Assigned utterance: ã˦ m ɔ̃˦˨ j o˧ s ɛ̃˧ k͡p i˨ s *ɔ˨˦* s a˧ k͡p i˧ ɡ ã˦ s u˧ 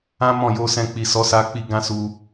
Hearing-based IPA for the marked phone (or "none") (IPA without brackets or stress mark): ɔ˨˦